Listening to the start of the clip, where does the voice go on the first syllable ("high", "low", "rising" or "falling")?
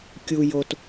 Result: low